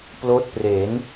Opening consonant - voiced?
no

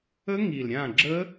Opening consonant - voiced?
yes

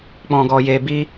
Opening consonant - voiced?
no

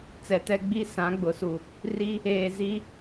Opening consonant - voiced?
no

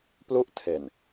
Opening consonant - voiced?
no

